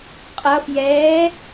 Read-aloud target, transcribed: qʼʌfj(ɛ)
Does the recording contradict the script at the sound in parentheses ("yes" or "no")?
yes